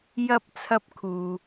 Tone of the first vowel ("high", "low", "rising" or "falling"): high